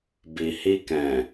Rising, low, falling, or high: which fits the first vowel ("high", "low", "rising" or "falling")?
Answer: low